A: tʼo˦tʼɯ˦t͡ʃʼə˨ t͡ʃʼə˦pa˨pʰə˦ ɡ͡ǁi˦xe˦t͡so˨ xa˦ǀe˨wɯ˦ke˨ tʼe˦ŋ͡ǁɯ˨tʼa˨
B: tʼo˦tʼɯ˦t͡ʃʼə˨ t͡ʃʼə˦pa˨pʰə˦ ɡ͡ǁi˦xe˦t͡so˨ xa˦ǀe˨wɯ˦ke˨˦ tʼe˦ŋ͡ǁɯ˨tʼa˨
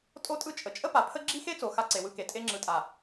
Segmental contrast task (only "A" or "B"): A